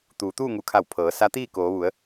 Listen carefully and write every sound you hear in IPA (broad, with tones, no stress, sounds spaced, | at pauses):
t̪ uː˩˧ t̪ uː˥˨ ŋ u˧˩ kʰ a˧˩ w pʰ ɤː˩˧ s a˧˥ t̪ iː˥˨ k oː˩˧ ʋ u˩˧ ə̯